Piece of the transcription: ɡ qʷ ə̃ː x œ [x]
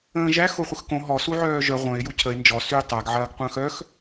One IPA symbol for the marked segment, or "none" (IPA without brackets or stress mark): x